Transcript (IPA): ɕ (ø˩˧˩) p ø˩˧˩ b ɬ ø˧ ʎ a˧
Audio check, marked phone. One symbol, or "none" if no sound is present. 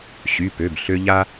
y˩˧˩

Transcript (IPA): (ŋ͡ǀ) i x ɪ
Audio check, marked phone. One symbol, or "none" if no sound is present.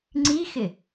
ŋ͡ǀ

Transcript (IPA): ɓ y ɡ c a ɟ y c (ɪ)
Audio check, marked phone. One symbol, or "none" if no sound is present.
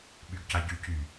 y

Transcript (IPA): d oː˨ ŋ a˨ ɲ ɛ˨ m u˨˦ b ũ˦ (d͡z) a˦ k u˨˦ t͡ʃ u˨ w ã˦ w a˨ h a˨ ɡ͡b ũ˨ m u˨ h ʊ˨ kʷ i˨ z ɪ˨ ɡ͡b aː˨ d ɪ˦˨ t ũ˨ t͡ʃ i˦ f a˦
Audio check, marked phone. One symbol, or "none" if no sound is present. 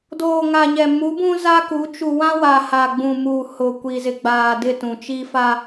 z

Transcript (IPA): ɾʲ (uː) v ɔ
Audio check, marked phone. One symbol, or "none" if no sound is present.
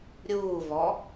uː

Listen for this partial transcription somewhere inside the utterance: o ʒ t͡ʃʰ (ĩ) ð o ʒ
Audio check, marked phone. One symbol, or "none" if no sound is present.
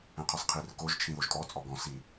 ĩ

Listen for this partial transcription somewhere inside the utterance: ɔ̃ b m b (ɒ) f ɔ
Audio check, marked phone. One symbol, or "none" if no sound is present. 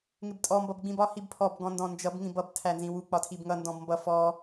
ʌ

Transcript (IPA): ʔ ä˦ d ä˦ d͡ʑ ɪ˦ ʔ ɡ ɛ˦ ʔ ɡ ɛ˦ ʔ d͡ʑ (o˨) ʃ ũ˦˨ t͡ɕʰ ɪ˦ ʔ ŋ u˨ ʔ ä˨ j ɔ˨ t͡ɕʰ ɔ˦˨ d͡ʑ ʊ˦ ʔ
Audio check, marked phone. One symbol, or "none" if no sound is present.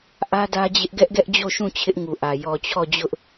o˦˨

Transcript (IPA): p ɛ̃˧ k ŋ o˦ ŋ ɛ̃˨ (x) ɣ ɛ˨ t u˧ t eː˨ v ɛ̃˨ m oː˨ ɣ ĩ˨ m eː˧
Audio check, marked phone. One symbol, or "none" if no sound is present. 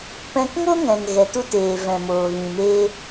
ŋ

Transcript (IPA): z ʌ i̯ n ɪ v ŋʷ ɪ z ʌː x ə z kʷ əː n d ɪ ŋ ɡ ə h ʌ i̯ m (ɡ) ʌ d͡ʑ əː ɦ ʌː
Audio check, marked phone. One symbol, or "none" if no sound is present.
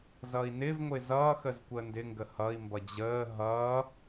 b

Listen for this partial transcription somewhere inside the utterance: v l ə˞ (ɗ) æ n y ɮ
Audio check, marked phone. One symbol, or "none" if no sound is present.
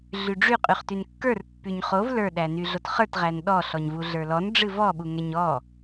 ɗ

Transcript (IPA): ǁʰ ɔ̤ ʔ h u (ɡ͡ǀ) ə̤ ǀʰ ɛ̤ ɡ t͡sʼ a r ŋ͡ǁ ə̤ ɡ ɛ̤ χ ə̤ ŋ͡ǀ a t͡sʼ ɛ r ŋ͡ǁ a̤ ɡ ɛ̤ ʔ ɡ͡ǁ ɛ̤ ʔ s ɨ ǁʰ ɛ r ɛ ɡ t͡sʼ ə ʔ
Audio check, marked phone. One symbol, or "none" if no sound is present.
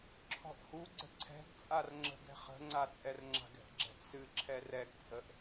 ɡ͡ǀ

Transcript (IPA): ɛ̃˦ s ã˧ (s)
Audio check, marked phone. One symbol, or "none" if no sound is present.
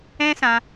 none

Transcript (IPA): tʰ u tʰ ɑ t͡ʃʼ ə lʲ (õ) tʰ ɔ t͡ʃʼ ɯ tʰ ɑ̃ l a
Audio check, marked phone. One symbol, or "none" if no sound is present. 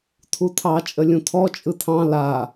ũ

